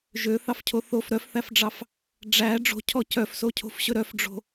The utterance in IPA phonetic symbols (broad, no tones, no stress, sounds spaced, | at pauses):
ʒ ø θ ɑ f cʰ o θ o f ɾ œ f θ æ f ɖ͡ʐ ɑ f | ɖ͡ʐ æ ɖ͡ʐ o̤ cʰ ɔ c œ f s o cʰ o̤ f ɕ ɵ ɾ œ f ɖ͡ʐ o̤